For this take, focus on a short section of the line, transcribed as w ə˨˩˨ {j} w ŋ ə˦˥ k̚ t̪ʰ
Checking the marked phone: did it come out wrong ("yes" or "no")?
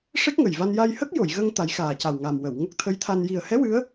yes